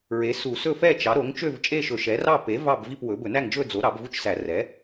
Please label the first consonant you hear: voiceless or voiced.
voiced